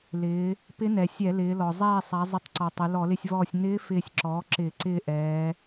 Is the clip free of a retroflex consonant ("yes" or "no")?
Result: yes